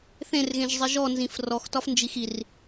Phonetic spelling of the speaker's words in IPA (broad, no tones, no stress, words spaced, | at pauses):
θẽrɣẽʒzˤi ʒɔnzĩf rɔxtɒf nd͡ʒixir